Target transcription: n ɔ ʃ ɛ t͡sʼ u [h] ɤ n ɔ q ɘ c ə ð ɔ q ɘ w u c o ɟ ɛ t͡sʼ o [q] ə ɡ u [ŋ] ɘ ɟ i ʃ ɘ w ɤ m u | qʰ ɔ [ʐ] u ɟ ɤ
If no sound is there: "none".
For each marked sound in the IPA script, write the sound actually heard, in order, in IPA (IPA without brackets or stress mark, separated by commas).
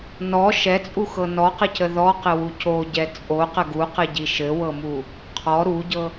x, q, q, ɾ